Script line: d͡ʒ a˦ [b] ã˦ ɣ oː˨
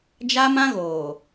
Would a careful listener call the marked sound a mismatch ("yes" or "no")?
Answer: yes